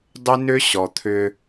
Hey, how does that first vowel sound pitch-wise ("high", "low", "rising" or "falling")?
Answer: high